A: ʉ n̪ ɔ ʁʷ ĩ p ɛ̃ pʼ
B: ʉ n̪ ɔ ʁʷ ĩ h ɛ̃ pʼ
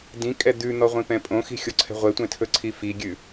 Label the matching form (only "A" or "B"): A